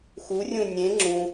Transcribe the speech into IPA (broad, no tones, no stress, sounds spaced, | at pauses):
x u rʲ ũ nʲ ẽ ŋ͡ǁ ũ